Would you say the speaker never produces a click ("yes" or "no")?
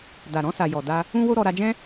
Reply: yes